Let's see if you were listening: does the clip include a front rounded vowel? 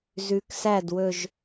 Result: no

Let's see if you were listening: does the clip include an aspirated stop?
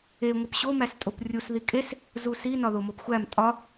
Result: no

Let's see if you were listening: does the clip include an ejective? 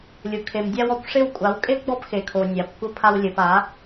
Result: yes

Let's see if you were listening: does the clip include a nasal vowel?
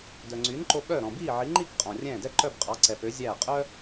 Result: yes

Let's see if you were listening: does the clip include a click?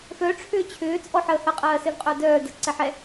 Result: yes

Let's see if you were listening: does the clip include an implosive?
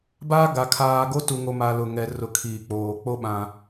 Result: yes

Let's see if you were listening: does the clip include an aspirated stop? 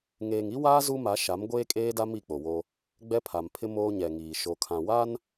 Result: yes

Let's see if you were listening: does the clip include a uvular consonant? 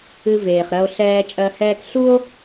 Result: yes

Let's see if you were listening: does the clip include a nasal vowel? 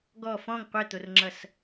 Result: yes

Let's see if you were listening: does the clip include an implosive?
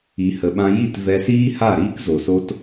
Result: yes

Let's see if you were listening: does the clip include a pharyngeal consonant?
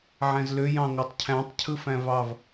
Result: yes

